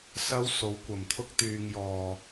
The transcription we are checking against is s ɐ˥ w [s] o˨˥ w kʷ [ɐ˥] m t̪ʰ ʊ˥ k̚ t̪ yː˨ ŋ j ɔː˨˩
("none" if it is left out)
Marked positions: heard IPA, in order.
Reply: s, ɐ˨˩

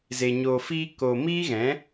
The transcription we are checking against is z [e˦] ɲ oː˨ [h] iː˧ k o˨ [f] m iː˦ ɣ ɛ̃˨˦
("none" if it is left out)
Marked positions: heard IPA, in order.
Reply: e˨, f, none

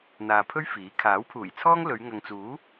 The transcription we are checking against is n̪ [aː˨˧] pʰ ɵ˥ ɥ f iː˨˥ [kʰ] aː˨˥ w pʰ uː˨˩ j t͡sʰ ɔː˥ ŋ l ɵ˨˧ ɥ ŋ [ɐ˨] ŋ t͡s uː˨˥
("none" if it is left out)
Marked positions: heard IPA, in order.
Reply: aː˨, kʰ, ɐ˨

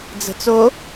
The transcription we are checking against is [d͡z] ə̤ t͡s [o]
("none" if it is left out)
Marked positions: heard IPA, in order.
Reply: d͡z, o

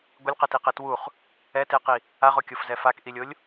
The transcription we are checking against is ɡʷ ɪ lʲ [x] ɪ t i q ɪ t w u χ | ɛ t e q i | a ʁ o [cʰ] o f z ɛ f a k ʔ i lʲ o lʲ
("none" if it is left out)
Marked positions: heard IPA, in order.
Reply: q, kʲ

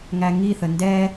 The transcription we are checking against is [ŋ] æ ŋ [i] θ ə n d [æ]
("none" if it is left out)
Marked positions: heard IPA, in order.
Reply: ŋ, i, ɛ

